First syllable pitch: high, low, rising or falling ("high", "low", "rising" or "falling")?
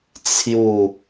falling